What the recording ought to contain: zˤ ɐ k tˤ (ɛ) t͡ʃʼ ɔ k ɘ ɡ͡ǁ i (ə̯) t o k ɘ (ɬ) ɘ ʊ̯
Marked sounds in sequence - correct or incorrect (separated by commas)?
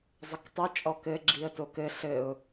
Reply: correct, correct, correct